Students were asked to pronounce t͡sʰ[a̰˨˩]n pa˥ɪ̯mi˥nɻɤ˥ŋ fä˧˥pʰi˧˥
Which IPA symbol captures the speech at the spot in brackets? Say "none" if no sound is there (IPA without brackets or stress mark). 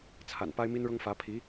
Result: a̰˨˩